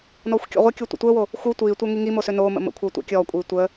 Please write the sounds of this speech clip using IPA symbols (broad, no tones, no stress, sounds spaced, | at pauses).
n ɔː xʷ kʲ ɔ̰ ʁʷ ə kʲ o tʷ ə̰ tʷ əː w o | x u tʷ iː tʷ ɛ ŋ i ŋ i m o s ø n oː m ə̰ m ə̰ kʷʰ əː tʷ ɛ̰ kʲ ɔː kʷʼ iː tʷ əː